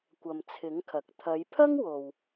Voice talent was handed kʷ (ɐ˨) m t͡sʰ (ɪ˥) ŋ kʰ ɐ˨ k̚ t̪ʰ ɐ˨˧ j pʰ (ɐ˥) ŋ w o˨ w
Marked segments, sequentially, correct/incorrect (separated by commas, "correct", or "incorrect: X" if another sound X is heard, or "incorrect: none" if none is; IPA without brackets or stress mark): correct, incorrect: ɪ˨˥, correct